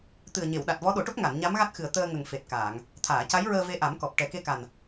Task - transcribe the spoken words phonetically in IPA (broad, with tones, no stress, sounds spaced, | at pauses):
t̪ ɨ˨˩ ə̯ ɲ e˨˩˨ w ɗ a˨˩ t̚ v ɔ˧˥ ɗ o˨˩˦ ʈ o˦˥ k̚ ŋ a˨˩˨ n ɲ a˧˥ m ɣ a˦˥ t̚ x ɨ˨˩ ə̯ t̪ əː˧ ŋ ə˨˩ ŋ f e˨˩ t̚ k aː˨˩˨ ŋ | t̪ʰ aː˨˩˨ c a˧˥ j ɹ əː˧ v e˧˥ ʔ a˨˩˦ m k ɔ˨˩ p̚ ʈ ɛ˨˩ k e˧ k a˨˩ n